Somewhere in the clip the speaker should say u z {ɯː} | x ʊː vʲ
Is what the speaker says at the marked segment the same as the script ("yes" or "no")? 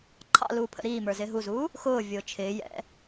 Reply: no